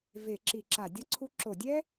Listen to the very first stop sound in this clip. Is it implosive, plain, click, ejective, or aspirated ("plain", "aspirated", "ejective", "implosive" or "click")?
click